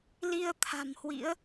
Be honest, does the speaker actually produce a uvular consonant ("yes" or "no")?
no